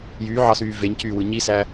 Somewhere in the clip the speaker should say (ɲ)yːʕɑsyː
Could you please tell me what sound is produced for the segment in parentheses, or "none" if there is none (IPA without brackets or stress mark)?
j